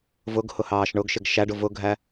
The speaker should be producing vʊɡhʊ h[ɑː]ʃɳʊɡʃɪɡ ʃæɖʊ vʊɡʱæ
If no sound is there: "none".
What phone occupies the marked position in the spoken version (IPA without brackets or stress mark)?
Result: ɑː